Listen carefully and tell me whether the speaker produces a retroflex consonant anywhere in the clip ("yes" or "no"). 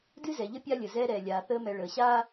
yes